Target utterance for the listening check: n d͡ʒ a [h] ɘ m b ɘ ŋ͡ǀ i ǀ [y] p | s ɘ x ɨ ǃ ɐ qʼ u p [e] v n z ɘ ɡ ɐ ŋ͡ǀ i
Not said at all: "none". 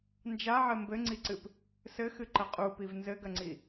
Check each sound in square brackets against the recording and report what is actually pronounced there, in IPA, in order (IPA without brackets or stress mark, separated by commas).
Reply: ʕ, ɨ, i